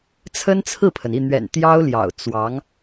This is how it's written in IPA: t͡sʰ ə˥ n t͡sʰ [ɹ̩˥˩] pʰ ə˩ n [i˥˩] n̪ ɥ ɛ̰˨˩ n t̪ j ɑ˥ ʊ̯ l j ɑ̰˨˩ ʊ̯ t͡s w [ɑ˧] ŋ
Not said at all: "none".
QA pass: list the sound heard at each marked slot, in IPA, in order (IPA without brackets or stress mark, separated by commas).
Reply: ɹ̩˥˩, i˥˩, ɑ˧˥